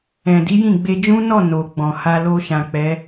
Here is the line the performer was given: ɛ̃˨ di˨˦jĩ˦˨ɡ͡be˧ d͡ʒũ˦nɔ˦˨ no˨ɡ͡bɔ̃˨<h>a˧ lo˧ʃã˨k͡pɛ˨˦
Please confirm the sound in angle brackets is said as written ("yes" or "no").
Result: yes